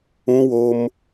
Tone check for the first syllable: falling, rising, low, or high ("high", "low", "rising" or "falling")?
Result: high